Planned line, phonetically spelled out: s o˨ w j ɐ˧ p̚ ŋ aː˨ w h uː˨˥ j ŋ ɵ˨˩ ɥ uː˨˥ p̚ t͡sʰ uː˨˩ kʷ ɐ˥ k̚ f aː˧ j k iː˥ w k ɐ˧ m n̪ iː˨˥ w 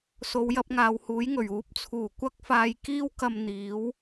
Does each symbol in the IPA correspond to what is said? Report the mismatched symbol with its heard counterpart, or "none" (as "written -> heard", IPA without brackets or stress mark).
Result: none